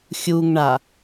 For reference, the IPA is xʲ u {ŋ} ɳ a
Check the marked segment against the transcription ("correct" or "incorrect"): correct